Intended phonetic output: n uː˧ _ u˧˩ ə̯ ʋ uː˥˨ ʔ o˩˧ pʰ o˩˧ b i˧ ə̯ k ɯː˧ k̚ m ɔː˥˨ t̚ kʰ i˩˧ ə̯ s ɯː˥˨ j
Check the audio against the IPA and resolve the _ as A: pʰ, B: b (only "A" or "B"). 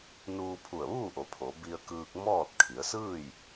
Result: A